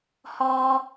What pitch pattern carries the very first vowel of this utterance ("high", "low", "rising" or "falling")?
high